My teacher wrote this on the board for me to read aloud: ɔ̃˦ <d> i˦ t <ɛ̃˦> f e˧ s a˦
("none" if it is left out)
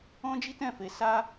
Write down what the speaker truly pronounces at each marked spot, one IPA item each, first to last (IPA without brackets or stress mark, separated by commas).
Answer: d͡ʒ, ɛ̃˦˨